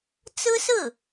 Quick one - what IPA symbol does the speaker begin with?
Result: t͡s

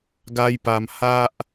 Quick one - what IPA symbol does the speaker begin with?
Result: ɡ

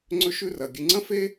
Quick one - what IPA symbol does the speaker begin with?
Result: ŋ͡ǀ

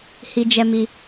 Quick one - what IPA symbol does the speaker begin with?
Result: h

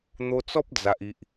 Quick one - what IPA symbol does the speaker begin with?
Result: n̪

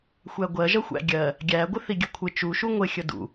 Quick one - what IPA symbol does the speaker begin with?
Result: xʷ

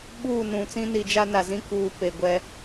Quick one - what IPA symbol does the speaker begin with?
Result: ɓ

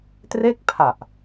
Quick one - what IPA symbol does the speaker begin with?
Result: t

